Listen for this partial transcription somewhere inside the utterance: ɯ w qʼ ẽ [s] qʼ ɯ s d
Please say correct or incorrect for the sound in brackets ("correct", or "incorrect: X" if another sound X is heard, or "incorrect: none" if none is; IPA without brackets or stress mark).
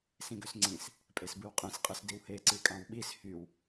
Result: correct